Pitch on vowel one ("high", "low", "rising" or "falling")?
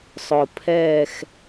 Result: low